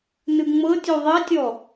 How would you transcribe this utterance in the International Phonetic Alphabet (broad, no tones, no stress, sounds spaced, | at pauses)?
n ɯ ŋ͡m ɤ tʲ u ðˤ ɛ tʲ ɔ